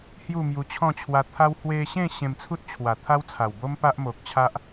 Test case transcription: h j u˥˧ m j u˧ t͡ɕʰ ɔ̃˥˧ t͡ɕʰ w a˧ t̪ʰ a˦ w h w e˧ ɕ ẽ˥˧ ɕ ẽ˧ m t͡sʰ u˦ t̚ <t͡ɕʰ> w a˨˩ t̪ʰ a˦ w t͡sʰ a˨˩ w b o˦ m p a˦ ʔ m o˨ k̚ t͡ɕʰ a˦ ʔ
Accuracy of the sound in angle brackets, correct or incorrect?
correct